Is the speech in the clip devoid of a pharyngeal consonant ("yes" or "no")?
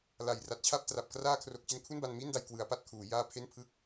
yes